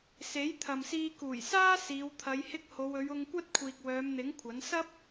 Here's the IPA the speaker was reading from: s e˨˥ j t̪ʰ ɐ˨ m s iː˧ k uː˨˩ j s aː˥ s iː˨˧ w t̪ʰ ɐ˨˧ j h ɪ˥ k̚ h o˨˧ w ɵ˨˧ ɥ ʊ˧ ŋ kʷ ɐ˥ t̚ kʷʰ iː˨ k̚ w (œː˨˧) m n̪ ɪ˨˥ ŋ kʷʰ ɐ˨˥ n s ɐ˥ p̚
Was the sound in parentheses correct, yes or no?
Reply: yes